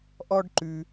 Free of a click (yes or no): no